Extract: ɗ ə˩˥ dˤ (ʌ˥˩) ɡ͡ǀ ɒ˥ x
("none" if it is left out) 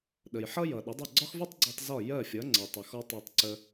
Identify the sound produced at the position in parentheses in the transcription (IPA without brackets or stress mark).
ʌ˥˩